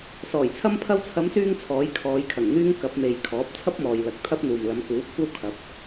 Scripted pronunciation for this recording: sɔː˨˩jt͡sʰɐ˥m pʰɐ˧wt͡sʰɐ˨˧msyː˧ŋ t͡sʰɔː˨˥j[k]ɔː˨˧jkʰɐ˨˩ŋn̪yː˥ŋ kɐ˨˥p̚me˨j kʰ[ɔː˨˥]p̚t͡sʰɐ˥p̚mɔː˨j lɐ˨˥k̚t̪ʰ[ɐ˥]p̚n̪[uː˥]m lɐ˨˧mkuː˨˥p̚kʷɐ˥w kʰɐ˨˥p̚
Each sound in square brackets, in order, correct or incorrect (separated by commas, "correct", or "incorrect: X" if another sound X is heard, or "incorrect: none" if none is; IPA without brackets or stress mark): incorrect: kʰ, correct, correct, incorrect: uː˨